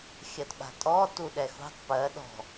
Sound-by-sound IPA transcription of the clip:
xʲɜtɓa̤tʼɔ tuɗɛxṳtˤ pɜ ɗɔ̤

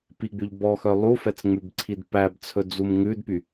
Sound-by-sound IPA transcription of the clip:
piɡ͡byʎ bɔxœ lˠufɛt͡sŋ͡mʉbǀʰid pæbt͡sʰɵd͡zum ŋʉdpy

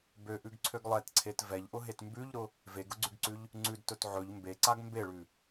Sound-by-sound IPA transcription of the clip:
bøʔʉɡǀʰøɡ lˠɛtǀʰet vɛʎʔʊɦet mbʉʎɾʊ | veɡʊɡ͡ǀʉɡǀʉʎ | ŋ͡ǀʉdtɵt ʕɵʎ mbeǀaɡ mbeɭʉ

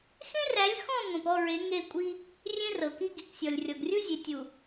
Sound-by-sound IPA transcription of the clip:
xẽ˦ræ˨˦lʲ xɔ̃˦˨ ŋʷẽ˨pɔ˦˨ɹe˨˦ ŋe˦˨kʷʼi˦ | rʲẽ˦rɤ˨ki˦ ɡi˨ksʲɔ˨lʲrʲɔ˨ɡrʲu˦ zʲe˨tʲu˨

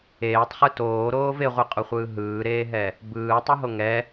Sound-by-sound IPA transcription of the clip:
eːtˤχɯ toːɾoːv eʁʷiqʼoχʷɯː ɦɯːɾeːɦɛ | bɯːtˤɯɦo ŋɛ

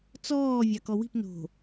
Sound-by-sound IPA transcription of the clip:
t͡sɔː vʲɑkɔwi̤p no̤

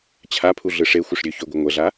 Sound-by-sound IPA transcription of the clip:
t͡ɕʰapʰuɮɯ ʂexʷɨʂ ɾʲø çøɡʷɨ ŋʷɛɮa

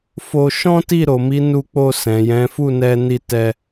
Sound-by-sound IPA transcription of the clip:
fo˧ ʃɔ̃˦ti˦˨ ɾo˨mi˨˦nu˧k͡po˧ sɛ̃˨jɛ̃˨˦ fu˦˨nɛ˧ni˧ tɛ˧

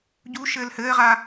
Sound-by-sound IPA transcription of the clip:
ɟu ʃɘːlhɘːʁa

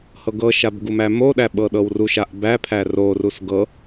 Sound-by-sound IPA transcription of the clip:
hɤɡɤʃab ɡumæmoɗæ ɓɤɗɤwruʃaʔ bæpʰæ rorus ɡɤ

